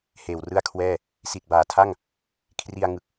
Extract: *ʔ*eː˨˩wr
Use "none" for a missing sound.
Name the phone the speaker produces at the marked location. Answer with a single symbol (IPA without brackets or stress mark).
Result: h